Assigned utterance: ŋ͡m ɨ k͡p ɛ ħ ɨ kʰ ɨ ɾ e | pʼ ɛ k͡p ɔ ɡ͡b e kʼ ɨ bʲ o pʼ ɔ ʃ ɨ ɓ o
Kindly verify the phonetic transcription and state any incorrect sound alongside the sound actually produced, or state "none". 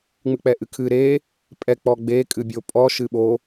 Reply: ħ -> ʔ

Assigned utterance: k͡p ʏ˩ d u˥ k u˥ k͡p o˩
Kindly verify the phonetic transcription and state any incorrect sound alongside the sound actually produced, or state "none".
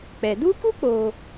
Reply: ʏ˩ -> ɛ˩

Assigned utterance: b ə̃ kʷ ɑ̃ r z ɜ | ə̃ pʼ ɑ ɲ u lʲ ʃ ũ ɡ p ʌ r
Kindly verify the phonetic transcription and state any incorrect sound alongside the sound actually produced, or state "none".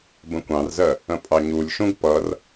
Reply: none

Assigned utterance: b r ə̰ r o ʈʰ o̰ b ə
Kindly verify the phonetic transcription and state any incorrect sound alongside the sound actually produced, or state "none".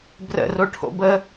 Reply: none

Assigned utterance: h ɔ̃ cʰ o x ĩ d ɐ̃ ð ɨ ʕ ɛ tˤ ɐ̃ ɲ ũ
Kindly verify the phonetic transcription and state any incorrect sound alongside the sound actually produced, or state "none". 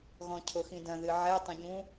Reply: h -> ɣ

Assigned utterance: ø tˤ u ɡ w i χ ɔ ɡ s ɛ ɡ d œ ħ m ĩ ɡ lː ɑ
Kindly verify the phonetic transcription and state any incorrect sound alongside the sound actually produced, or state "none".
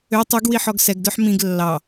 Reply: χ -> ħ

